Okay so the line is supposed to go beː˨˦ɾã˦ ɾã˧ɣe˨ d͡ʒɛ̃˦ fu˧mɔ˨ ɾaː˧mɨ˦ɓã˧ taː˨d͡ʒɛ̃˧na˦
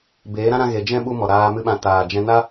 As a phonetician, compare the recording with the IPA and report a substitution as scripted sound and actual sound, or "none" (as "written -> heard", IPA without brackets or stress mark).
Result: f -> ɓ